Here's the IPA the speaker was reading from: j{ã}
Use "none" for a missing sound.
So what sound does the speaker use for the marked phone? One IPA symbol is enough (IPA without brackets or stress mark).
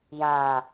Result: ã